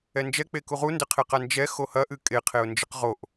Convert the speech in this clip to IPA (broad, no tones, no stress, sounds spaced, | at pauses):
ɛ n d͡ʒ ɛ k͡p e k u ʁ u n d ɘ qʰ e q a n d͡ʒ ɛ x o h ɐ ʔ ɨ kʼ e qʰ e ʊ̯ n d͡ʒ ɨ q ʁ o ʔ